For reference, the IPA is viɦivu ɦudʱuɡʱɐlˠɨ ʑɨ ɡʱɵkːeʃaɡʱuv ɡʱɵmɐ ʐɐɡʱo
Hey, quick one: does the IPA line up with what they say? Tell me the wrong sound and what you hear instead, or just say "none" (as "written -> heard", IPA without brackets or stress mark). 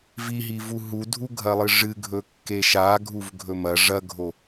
ʑ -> ʐ